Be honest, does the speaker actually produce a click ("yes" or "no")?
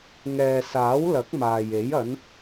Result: no